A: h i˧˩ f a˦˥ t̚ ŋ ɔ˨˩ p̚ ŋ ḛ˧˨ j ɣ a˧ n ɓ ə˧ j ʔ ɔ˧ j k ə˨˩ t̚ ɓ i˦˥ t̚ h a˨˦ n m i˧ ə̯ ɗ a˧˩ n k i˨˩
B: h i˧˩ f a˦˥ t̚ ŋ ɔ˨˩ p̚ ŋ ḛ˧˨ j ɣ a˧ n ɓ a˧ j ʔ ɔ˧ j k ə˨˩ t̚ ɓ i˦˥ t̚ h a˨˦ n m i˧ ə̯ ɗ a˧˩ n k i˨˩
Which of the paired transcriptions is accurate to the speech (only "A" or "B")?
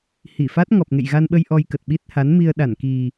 A